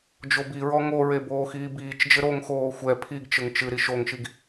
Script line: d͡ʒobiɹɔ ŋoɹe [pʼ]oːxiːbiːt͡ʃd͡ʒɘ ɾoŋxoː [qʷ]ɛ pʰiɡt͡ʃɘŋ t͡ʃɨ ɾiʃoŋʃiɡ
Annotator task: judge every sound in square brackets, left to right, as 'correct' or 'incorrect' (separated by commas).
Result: incorrect, incorrect